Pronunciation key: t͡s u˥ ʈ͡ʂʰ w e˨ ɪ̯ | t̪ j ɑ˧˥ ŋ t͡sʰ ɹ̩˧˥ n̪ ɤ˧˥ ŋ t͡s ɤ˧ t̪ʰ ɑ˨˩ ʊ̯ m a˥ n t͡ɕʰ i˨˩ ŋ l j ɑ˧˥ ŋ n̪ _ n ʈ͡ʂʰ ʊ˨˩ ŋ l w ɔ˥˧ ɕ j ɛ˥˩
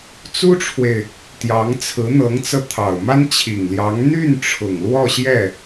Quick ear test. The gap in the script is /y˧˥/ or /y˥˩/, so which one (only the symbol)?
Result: y˥˩